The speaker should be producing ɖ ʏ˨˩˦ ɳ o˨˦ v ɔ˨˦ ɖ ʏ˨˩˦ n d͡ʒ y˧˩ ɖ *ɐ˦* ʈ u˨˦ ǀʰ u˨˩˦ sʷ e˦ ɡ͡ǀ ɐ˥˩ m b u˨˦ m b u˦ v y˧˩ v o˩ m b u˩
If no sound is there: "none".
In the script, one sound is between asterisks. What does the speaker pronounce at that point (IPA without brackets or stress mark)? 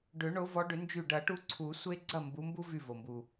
ɐ˨˩˦